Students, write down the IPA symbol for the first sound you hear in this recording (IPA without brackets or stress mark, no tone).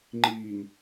ŋ͡ǃ